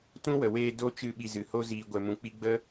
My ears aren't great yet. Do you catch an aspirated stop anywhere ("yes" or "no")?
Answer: no